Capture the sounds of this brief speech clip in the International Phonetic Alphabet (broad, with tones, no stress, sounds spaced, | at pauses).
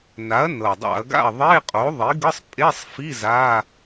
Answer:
n a˩˥ ɐ̯ n ɤ˨˩ dˤ a̰˧˩˧ ɐ̯ ɡ a̰˥˨ ɐ̯ ðˤ e˧˥˧ qʼ o˩˥ ðˤ i˩˥ ɡ ɯ˧˥˧ sˤ pʼ e˧˥˧ sˤ f i˧˥˧ z a˧˥˧